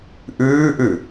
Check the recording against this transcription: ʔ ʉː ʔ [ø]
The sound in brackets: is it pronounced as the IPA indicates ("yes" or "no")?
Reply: no